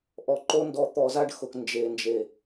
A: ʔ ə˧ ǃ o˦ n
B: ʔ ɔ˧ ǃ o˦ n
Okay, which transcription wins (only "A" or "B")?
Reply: B